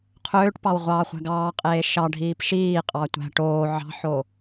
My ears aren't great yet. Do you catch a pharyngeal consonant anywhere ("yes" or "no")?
yes